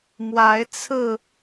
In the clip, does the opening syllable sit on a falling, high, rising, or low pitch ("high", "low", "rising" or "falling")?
rising